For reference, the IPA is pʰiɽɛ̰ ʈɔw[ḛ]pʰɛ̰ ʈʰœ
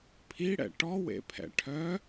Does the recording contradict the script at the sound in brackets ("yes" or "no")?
no